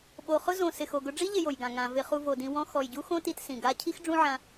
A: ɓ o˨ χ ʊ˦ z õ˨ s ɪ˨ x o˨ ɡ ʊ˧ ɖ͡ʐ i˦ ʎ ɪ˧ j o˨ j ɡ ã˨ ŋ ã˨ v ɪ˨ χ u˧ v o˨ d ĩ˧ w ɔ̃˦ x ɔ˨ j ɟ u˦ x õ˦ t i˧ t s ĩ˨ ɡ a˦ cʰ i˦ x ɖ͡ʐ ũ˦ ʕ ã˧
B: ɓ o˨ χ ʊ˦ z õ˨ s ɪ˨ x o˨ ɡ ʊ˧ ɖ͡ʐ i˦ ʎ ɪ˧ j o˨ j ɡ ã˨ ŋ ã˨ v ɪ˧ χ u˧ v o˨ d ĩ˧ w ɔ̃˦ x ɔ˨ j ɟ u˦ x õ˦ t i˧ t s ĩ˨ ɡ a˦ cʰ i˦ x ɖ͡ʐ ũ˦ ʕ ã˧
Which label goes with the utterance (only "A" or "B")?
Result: B